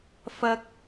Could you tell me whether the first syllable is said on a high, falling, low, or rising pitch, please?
high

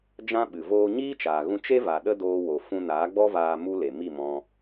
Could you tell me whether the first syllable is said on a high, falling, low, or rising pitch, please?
high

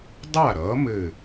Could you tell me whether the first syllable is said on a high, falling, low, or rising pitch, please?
falling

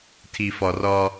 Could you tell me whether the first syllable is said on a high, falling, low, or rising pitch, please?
low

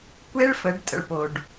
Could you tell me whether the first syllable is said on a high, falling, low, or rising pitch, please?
high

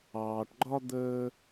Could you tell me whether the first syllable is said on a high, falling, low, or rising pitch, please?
low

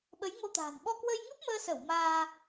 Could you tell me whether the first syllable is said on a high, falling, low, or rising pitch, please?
rising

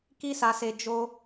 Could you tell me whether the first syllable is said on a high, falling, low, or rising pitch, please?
high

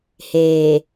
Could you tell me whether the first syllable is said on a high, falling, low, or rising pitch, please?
low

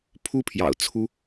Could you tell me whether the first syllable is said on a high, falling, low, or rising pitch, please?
high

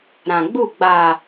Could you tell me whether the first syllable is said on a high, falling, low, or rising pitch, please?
low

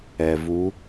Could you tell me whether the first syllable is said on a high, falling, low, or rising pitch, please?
low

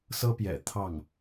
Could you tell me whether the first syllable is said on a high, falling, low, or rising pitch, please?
high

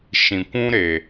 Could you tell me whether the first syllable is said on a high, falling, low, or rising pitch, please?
low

